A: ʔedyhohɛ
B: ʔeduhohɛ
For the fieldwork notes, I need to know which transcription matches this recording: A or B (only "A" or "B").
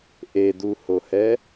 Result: B